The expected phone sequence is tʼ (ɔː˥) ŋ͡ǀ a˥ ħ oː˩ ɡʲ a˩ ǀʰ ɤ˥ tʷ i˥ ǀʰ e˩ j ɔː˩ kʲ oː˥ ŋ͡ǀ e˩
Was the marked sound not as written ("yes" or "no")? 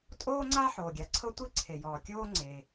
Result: yes